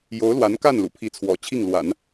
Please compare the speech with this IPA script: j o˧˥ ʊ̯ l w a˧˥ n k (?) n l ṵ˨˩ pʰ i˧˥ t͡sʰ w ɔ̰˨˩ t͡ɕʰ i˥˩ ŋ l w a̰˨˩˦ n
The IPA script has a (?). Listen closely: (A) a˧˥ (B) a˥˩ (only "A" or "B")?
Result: B